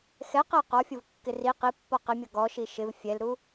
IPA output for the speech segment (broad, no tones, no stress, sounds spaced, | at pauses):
x ɛ q æ q ɔ fʲ ʊ v kː ɪ r i q i pː ɔ q ɪ mʲ ʌ ɡ ɔ ʃ i ʃ ɪ v fʲ ɛ l ɾ u